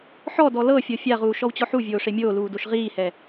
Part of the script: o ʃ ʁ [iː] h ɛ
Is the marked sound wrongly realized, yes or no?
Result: no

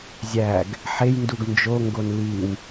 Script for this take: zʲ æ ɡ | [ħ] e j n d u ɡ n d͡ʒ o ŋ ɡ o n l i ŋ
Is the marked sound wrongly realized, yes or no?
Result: no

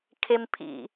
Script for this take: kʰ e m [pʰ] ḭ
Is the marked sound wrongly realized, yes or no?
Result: no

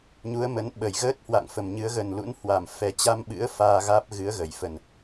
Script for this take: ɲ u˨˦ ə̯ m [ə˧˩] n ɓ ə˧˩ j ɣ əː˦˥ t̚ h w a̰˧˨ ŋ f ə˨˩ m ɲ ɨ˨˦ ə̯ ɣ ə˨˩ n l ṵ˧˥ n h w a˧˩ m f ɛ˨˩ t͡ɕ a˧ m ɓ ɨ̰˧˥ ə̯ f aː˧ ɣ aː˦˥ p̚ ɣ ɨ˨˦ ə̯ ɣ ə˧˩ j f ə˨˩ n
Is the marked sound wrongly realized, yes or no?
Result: yes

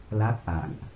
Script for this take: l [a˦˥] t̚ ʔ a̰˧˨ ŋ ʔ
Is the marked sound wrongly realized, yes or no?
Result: no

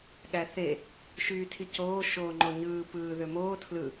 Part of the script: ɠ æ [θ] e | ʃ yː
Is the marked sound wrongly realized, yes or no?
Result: no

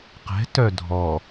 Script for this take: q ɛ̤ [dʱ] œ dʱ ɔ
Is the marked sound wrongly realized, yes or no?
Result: yes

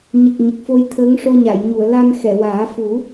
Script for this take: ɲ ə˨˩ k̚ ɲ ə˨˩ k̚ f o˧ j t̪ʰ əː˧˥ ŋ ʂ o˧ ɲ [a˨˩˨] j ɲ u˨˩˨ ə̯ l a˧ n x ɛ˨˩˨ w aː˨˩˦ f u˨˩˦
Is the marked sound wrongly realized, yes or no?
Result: no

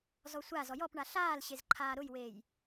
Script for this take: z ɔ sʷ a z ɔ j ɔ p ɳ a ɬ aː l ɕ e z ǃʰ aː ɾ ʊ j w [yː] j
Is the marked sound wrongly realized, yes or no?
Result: yes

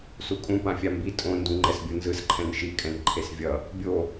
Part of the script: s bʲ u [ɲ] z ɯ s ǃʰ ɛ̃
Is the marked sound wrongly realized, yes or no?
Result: yes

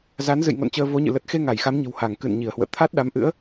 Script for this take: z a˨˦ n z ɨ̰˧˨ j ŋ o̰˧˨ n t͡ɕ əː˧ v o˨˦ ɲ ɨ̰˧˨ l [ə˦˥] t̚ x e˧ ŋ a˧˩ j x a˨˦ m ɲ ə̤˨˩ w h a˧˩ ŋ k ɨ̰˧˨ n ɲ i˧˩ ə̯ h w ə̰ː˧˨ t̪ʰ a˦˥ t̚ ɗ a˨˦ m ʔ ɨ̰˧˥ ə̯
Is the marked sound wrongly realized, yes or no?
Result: yes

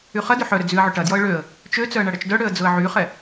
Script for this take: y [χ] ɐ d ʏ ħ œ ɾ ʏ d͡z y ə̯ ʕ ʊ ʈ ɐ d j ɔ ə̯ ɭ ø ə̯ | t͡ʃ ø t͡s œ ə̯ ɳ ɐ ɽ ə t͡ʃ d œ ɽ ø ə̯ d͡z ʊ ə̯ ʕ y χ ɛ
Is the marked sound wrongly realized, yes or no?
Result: no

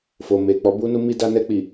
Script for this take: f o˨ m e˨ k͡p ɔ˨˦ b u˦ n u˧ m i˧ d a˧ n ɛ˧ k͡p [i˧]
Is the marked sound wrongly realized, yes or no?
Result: yes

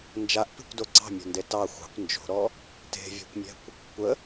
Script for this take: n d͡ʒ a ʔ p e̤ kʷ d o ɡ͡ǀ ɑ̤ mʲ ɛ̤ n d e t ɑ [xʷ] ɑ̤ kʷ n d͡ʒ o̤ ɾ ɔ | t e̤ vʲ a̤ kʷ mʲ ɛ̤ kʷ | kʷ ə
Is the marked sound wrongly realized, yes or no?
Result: no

